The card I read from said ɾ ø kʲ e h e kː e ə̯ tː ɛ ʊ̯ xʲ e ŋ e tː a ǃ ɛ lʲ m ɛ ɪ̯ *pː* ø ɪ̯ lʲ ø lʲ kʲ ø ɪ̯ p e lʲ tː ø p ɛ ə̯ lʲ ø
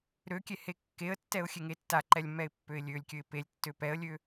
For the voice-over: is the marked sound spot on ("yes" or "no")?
yes